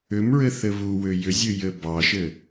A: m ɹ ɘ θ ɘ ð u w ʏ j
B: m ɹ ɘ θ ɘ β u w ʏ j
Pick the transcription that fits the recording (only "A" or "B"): B